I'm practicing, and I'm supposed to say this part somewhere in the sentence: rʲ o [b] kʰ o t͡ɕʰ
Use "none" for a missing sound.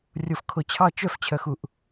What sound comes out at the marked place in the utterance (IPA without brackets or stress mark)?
f